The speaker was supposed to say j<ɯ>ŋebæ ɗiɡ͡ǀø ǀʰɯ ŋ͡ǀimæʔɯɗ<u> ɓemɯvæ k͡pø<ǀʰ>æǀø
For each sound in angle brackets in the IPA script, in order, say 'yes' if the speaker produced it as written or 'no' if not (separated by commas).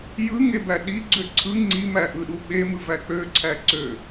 yes, yes, yes